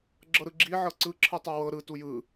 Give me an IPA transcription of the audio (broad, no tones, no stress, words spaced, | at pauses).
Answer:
ɡ͡ǁɤɾɯɡ͡ǁi ʕɤǀɯ ǁʰɯtˤɤwɤ ɾɯ tujɯ